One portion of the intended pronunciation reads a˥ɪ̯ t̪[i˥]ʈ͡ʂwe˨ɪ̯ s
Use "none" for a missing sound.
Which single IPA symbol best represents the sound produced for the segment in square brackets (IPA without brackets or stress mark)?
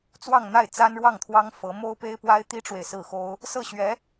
i˥